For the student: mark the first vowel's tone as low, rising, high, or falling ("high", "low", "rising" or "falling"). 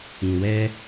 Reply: low